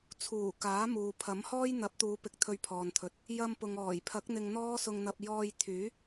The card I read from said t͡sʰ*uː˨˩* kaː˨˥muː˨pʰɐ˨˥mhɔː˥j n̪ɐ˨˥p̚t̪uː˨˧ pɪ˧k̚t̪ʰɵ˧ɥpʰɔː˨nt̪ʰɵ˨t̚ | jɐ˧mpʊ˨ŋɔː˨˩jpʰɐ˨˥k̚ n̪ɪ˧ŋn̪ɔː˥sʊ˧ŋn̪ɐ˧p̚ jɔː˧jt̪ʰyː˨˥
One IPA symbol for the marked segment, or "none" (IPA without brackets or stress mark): uː˨˩